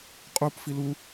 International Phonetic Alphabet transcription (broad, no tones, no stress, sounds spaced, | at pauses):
qʼ u p f i l u